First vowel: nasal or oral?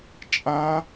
nasal